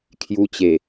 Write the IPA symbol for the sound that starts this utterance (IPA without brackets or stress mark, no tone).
kʰ